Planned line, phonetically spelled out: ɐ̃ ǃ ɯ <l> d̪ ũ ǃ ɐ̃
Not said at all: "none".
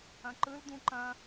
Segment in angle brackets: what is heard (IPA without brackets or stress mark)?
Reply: l